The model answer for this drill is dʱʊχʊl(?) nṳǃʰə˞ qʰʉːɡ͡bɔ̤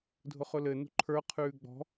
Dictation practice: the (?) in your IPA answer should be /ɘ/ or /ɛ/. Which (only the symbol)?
ɘ